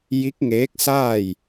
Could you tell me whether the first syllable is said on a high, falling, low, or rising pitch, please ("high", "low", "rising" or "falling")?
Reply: rising